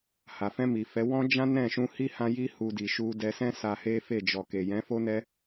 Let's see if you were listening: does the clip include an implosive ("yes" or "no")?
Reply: no